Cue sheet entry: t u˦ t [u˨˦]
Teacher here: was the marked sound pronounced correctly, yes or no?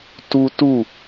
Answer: no